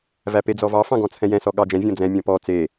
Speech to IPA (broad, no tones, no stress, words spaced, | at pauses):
væped͡zɔvɑ fɑ̃ɡɔ̃t͡sʰɛ̃jɛ̃ sɔɠɑd͡ʒɛ̃ vʲɔ̃d͡zɛ̃ mʲɔ̃pɔ t͡se